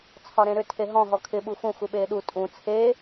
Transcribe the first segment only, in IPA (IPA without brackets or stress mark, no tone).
t͡sʰ